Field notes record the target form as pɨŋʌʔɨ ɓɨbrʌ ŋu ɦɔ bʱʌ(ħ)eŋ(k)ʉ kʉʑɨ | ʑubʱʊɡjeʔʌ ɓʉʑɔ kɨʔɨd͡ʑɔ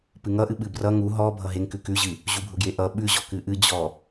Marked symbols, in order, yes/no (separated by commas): no, yes